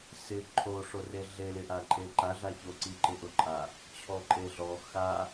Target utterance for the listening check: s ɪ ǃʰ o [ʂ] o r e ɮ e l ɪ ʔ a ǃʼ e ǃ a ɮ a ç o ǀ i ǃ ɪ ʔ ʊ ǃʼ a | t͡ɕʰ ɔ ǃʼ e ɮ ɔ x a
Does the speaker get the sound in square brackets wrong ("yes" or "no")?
no